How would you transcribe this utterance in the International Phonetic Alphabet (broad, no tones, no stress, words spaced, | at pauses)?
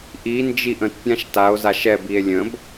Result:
ʔi nd͡ʒiʔə̃t pʲãʃtao̯ zaʃɛbie̯ lʲə̃b